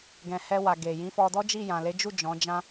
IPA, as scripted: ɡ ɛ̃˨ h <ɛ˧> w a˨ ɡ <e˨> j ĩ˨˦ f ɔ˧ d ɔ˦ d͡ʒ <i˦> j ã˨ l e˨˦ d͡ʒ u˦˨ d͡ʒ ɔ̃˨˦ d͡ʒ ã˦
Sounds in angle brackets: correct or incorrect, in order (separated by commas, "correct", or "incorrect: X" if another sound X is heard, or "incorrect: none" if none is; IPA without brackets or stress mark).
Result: correct, correct, incorrect: i˦˨